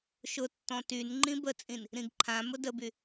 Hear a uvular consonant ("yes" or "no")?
no